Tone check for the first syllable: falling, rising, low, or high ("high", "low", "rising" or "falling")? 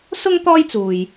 high